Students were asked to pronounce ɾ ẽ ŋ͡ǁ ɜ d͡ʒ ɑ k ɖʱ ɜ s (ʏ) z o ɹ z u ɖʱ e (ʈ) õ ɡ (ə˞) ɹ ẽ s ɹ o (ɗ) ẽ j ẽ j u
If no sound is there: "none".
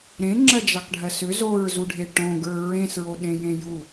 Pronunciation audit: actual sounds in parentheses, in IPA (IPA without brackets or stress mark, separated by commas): ʏ, ʈ, ə˞, ɗ